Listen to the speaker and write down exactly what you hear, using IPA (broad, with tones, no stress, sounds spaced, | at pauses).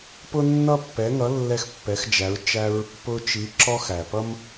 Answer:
p ʊ˥ nː ʌ˥ pː ɛ˧˥ ŋ ʌ˧˥ lː ɛ˥ x pː ɛ˧˥ x d͡ʒ æ˧˥ ɹ t͡ʃ æ˥ ɹ | p ʊ˥ t͡ʃ i˧˥ ǁ ɔ˥ x æ˨ p ʌ˥ m